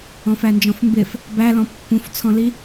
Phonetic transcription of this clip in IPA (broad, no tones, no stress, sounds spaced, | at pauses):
ɔ̃ f æ n d͡ʒ ɔ̃ f m b ɪ f | b æ l ɔ̃ pː ũ f t͡sʰ ɔ̃ l i